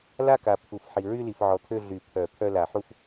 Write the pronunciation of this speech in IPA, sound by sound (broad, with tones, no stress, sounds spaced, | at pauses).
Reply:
l a˥˧ k a˨ pʰ u˨˩˦ f ħ i˨ ɹ y˥˧ l i˨ f ʕ ɔ˨ t̪ʰ ø˥˧ ɮ y˨˩˦ pʰ œ˨˩˦ pʰ œ˥˧ l a˨˩˦ ħ u˥˧ f